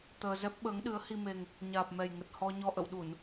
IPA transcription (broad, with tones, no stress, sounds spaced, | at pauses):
t̪ əː˧ z ɛ˦˥ p̚ ɓ əː˨˦ ŋ ɗ ɨ˨˦ ə̯ h i˧ m e˨˩ ŋ | ɲ aː˨˩ p̚ m ɛ˨˩ j ŋ ə˨˩ t̚ h ɔ˧ ɲ ɔ˧ ʔ ə̰˧˨ w ɗ u˧˩˨ n